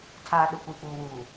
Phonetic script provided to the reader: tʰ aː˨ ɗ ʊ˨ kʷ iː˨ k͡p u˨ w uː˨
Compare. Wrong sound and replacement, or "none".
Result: u˨ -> uː˨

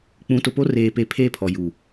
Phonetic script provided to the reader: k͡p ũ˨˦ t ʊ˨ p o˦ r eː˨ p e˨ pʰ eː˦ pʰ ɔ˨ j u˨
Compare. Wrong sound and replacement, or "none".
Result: none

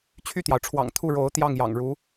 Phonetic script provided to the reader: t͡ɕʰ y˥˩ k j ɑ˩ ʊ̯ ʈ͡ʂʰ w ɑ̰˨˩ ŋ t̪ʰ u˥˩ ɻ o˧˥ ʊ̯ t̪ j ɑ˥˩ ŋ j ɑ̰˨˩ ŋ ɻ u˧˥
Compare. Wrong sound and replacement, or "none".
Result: k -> t̪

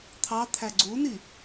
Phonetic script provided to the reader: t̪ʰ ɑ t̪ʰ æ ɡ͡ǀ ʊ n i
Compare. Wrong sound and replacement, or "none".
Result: ʊ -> u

